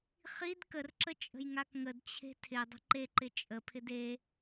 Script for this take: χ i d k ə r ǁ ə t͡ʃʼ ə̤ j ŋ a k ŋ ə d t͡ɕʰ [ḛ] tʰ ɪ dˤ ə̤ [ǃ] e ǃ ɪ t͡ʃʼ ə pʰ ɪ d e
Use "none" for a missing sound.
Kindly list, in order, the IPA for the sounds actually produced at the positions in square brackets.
e̤, ǃ

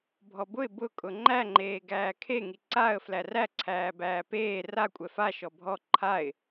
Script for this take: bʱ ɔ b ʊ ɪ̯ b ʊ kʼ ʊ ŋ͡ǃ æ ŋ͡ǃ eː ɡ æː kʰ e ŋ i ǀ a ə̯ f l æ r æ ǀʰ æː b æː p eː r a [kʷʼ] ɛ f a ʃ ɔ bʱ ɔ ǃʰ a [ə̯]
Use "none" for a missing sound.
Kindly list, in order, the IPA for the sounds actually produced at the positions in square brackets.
kʷʼ, ɪ̯

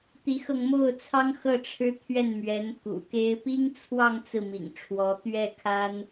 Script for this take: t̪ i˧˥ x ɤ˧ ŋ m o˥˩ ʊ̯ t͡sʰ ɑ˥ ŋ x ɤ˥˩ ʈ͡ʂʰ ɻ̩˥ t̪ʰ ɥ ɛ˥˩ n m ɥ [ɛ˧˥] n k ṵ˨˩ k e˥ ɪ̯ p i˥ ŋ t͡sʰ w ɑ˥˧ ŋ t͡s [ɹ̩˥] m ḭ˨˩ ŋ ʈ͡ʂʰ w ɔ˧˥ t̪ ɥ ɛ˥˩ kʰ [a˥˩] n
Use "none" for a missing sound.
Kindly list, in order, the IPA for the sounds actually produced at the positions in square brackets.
ɛ˧˥, ɹ̩˥˩, a˥

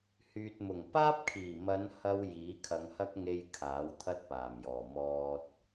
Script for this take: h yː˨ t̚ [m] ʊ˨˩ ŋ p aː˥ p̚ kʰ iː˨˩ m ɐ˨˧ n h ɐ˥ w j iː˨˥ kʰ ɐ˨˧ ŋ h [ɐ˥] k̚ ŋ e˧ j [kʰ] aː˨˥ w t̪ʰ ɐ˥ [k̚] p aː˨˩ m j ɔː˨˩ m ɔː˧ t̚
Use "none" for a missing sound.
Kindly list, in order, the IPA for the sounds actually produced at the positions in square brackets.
m, ɐ˥, kʰ, t̚

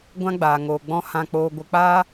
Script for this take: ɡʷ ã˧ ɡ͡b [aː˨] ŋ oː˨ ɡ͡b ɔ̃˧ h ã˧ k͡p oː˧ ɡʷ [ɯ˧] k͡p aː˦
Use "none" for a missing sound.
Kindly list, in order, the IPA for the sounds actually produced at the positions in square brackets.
aː˨, ə˧

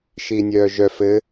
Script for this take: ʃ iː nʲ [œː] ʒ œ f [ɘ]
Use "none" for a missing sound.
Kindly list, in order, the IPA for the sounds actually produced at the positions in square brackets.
œː, ɘ

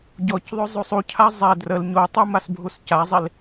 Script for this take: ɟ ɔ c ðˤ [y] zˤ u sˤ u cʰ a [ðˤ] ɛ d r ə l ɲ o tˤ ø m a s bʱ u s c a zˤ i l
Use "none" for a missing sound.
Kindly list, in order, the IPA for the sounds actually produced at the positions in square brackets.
ø, zˤ

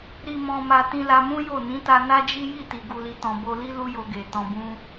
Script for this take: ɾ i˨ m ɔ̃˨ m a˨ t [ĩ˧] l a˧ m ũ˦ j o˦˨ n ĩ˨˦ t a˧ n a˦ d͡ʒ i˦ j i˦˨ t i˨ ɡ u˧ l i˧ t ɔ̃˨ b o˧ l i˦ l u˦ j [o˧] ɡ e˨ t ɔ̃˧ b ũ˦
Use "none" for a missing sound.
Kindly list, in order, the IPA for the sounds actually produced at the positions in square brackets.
ĩ˧, o˧

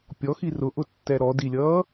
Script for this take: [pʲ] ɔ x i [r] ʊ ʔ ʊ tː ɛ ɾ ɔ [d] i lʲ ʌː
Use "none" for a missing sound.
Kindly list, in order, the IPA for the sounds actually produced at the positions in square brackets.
pʲ, r, d

